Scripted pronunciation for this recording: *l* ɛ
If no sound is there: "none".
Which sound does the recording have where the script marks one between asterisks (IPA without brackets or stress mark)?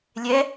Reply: lʲ